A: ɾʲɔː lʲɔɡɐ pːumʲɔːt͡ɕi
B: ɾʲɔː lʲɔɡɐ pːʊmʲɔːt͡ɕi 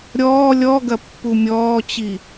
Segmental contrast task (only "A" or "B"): A